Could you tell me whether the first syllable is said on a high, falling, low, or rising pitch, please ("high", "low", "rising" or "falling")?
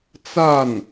falling